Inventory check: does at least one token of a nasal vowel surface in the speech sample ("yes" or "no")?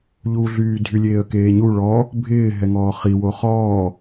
no